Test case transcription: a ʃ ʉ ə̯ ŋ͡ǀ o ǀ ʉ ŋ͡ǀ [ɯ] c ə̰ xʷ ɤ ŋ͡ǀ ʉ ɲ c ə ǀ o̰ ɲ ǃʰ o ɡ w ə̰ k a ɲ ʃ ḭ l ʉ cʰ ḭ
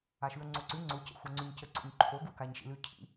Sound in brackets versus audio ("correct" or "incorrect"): incorrect